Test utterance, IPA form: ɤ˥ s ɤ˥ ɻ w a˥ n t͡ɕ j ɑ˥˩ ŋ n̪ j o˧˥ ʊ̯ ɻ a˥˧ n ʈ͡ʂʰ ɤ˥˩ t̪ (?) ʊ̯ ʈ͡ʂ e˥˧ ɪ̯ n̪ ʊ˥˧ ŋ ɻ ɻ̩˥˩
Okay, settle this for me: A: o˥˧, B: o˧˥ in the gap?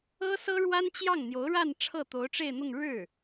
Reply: B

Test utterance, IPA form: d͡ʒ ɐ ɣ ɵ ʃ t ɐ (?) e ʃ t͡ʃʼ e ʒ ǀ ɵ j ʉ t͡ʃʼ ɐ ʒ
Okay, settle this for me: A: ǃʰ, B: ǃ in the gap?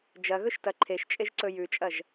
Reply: A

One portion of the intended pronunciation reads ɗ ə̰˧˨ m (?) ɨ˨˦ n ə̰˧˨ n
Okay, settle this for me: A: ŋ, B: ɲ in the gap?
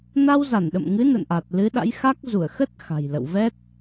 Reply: A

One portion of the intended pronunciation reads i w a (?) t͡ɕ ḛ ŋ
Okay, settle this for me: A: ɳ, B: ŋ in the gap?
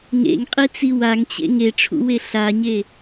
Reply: B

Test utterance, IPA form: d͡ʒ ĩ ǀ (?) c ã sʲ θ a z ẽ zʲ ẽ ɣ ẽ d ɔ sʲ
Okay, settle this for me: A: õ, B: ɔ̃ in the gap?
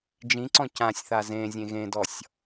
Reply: B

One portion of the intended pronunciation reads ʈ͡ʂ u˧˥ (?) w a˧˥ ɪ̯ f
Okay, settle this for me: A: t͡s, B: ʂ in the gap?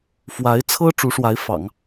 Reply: B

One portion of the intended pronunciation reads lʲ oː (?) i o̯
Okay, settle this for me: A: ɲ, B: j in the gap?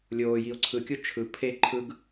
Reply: B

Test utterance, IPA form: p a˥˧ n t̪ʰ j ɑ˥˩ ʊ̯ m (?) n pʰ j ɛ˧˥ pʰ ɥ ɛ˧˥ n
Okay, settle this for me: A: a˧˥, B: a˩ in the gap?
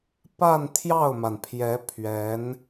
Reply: B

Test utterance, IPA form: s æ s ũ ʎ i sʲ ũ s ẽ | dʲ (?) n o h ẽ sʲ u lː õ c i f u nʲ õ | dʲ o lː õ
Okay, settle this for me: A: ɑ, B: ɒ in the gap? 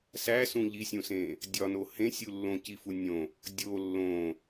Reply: B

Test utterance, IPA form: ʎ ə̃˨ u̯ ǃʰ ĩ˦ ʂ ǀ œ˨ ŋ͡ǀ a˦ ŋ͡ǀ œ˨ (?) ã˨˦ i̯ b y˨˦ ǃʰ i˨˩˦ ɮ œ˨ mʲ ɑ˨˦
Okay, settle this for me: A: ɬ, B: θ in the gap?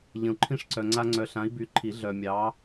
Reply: A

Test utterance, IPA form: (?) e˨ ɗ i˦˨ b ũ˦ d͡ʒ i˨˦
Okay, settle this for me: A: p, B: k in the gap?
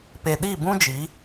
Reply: A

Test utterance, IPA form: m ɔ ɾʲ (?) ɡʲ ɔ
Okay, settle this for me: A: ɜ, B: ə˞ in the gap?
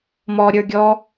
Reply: B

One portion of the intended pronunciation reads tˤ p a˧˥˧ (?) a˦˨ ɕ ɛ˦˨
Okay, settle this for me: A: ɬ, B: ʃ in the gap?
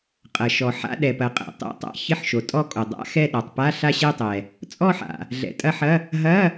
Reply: A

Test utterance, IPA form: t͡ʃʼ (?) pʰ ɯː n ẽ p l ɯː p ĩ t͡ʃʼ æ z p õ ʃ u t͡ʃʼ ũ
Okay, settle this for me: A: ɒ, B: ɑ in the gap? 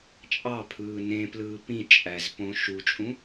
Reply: B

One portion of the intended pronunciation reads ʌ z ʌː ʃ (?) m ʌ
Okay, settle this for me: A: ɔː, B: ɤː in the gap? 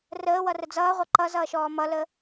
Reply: A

